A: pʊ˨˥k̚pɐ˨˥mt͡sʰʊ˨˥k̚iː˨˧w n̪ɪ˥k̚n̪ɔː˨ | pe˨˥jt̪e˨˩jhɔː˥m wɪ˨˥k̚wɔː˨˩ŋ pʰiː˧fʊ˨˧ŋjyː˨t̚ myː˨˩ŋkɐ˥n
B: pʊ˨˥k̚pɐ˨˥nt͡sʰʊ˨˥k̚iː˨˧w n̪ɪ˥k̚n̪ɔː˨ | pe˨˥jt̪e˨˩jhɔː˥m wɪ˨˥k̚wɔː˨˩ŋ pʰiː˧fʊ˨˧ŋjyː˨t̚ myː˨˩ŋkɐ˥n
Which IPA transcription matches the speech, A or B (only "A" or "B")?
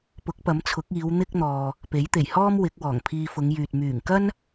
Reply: A